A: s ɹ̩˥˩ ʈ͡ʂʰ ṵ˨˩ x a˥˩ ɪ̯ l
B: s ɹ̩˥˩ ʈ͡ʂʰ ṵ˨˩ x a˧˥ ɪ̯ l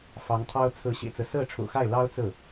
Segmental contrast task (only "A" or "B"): A